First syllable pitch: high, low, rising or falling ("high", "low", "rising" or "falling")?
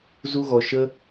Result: high